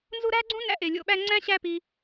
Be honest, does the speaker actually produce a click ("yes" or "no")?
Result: yes